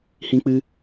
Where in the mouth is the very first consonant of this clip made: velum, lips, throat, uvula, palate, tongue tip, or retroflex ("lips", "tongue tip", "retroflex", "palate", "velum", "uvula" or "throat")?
throat